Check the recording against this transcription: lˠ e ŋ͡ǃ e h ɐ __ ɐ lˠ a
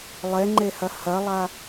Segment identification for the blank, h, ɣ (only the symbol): h